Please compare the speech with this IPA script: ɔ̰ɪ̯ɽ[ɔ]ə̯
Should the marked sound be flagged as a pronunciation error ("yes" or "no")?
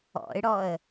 no